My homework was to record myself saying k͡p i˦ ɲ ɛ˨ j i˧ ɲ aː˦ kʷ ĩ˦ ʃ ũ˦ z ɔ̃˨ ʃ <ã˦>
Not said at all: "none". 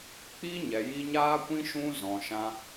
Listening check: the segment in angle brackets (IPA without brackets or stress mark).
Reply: ã˧